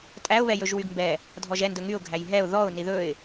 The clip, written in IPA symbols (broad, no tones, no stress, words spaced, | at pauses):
tʼæʊ̯ βɛjɵʒwyɡmbɛ | dʱɔʒɛ ndɵŋyʊ̯ ɡʱæjɦɛʊ̯ ðɔʊ̯ niðɵɪ̯